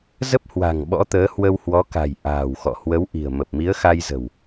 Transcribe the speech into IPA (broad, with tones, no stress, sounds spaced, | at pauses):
z ə˦˥ p̚ h w a̤˨˩ ŋ ɓ ɔ̰˧˥ t̪ əː˨˦ h w ə˧ w h w ɔ˨˦ k a̤˨˩ j ʔ a̤ː˨˩ w x ɔ̰˧˨ h w ə˨˦ w ʔ i̤˨˩ ə̯ m ə˨˩ p̚ m i˨˦ ə̯ x a˧ j z ə̤˨˩ w